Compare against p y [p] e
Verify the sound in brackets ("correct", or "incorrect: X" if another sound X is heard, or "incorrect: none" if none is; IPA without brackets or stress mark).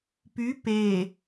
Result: correct